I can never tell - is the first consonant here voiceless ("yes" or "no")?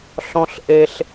yes